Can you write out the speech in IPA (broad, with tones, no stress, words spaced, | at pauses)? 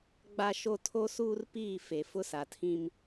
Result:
ɡ͡ba˦ʃo˦ tʰo˦suː˦rpiː˦˨ fe˨fʊ˦sa˨tʰĩ˦m